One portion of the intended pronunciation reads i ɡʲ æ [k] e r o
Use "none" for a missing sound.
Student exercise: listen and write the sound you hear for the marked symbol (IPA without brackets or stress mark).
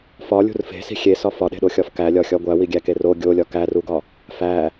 k